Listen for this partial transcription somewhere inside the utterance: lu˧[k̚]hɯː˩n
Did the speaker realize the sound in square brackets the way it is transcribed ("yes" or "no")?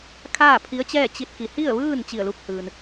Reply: yes